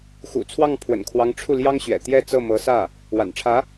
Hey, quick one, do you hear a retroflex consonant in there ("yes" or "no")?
yes